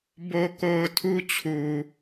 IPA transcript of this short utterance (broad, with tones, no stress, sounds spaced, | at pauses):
b o˨ k o˨ ʊ̯ tʰ u˦ t͡ɕʰ u˨